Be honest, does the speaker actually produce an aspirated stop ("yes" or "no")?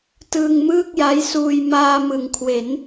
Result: yes